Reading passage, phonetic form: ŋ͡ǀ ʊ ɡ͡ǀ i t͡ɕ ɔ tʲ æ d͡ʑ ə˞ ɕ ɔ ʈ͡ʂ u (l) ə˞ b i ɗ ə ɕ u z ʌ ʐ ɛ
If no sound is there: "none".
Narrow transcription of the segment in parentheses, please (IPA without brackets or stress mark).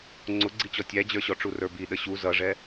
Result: r